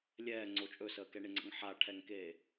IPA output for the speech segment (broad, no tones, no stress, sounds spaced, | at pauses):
lʲ ɛː ŋ͡ǀ o t͡ʃʼ ɵ s əː k ɛ ɳ e ŋ͡ǀ ə̰ ŋ ħ a ʈʰ ɛ ŋ k eː